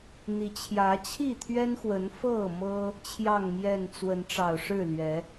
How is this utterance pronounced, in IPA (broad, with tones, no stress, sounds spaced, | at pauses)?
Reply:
n̪ i˨˦ t͡ɕʰ j ä˨˦ t͡ɕʰ i˥˨ t̪ʰ ɥ ɛ˦ n x w ə˨˦ n f ɤ˥˨ m ɤ˦ | t͡ɕʰ j ɑ˥˨ ŋ m j ɛ˥˨ n t͡s w ə˨˦ n ʈ͡ʂ ɑ˨˩ ʊ̯ ʂ ɻ̩˥˨ l ɥ ɛ˨˦